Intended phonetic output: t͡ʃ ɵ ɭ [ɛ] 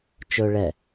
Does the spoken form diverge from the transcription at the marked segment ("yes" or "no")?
no